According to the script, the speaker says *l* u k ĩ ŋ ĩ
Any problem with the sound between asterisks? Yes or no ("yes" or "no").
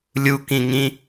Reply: yes